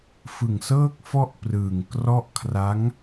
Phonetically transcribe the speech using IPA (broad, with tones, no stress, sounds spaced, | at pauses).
f ɯ˨˩ ŋ s ɤː˥˩ k̚ f ɔ˥˩ ʔ p r ɯː˨˩ ŋ k r ɔ˥˩ ʔ kʰ r a˦˥ ŋ